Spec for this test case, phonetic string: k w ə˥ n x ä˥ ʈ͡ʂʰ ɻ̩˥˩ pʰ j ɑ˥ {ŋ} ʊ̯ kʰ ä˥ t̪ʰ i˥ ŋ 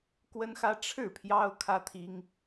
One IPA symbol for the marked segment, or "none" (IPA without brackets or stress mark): none